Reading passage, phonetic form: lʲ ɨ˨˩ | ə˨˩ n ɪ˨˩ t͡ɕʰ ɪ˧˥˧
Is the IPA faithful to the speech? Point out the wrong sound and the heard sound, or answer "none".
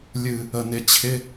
none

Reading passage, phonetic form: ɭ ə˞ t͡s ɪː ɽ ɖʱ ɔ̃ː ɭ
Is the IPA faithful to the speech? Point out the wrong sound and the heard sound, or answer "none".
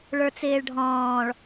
ɽ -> ɭ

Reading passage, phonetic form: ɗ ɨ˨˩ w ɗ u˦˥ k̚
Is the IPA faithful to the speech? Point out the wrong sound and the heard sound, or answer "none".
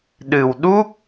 none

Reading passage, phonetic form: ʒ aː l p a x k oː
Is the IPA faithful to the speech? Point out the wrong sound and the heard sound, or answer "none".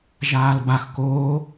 p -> b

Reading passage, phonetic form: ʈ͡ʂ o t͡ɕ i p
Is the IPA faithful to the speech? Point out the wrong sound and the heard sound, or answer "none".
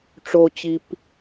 none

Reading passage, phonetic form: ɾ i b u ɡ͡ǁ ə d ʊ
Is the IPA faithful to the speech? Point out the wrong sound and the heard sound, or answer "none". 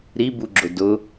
ə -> ʊ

